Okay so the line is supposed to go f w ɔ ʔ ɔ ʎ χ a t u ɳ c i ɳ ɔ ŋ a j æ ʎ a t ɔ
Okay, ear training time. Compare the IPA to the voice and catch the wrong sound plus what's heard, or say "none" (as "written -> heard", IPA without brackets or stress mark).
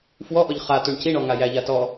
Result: none